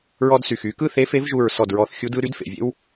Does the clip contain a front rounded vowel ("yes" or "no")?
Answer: yes